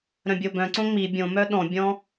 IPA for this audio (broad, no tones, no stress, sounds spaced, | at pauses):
ɾ œ̃ bʲ o b œ̃ ǀ õ ŋ͡m i bʲ õ m œ ɗ ɔ̃ bʲ ɔ̃